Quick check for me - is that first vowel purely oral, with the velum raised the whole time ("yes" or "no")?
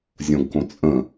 no